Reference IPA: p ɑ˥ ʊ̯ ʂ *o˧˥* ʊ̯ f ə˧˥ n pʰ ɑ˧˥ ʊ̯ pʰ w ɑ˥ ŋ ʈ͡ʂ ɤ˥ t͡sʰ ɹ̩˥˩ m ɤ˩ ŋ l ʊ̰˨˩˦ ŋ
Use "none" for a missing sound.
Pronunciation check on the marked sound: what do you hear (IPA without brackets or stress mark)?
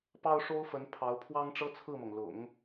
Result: o˥